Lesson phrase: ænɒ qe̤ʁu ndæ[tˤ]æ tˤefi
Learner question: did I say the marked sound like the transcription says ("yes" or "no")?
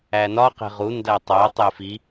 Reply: yes